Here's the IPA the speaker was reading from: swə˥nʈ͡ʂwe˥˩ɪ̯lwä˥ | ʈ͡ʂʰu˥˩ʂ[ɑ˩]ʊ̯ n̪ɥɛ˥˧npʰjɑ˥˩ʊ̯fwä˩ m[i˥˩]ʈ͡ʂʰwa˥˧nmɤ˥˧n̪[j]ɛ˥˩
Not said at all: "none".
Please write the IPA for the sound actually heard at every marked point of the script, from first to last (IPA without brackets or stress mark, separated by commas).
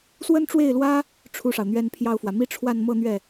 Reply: ɑ˩, i˥, ɥ